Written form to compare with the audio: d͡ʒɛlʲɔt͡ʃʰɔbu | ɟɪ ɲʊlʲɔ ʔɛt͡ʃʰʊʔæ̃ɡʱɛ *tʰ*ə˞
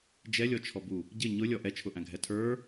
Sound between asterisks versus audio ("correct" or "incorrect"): correct